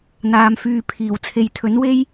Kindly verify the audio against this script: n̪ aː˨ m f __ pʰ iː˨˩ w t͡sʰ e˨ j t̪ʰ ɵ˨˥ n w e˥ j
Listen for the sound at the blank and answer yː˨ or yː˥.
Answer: yː˨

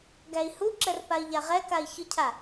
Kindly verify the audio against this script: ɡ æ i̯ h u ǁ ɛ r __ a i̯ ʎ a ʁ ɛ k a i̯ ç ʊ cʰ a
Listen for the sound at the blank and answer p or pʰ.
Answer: p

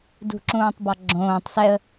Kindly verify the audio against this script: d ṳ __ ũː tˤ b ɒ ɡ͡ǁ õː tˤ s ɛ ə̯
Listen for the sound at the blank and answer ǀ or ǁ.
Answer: ǁ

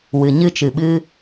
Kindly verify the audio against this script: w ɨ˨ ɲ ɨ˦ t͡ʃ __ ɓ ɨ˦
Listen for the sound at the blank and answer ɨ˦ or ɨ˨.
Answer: ɨ˨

